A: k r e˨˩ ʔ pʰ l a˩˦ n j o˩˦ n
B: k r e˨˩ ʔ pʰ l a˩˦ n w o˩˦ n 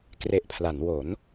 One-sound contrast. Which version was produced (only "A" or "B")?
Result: B